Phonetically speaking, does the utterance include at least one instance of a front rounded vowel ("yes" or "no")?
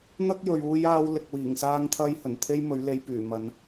yes